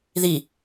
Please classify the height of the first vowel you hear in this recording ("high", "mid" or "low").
high